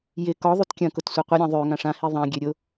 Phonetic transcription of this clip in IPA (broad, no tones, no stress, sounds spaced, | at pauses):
j ɪ k ɔ ðˤ y t kʲ ɐ̃ k ʊ t sʷ ɐ qʷ ɪ ɾʲ ã ðˤ ø ŋ ã ʂ ã h i ðˤ ã ɡʲ ø ɾʲ ʊ